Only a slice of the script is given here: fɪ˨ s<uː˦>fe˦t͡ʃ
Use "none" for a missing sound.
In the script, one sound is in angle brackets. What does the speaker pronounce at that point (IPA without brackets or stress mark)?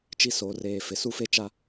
u˦